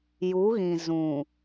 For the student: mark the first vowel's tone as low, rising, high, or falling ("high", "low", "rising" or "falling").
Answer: rising